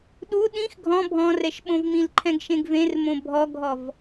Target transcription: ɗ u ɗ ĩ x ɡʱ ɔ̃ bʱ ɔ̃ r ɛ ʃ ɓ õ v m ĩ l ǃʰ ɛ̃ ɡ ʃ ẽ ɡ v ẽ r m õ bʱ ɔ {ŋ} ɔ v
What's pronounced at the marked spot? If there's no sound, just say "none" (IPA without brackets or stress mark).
ɡʱ